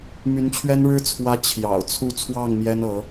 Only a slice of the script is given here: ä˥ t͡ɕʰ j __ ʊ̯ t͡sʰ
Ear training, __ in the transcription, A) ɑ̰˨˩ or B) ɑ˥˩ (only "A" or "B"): A